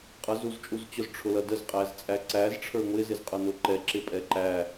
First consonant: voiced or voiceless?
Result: voiceless